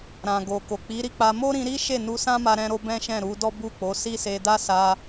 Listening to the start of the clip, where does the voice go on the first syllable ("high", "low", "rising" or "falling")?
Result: low